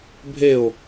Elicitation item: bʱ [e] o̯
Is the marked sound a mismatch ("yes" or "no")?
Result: no